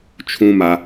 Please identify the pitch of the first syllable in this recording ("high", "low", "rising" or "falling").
high